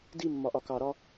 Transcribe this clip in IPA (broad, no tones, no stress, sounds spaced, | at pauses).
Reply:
d i mː ɒ ʔ ɒ k ɑ ɾ ɒ